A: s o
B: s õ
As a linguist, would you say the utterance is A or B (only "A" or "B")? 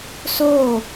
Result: A